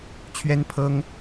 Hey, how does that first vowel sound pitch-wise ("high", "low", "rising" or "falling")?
high